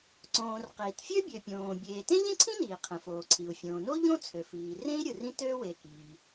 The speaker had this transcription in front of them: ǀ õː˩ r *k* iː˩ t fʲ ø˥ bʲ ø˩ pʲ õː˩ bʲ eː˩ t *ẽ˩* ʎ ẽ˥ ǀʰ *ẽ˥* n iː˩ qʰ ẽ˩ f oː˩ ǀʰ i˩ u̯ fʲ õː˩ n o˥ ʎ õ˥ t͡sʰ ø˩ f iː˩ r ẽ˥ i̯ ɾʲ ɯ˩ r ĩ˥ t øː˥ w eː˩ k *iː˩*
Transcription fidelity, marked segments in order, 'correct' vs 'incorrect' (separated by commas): incorrect, incorrect, incorrect, correct